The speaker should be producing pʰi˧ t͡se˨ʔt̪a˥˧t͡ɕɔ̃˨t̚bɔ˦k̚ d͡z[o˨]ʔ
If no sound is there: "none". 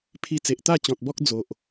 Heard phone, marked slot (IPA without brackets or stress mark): o˨